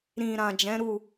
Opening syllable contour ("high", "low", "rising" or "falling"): low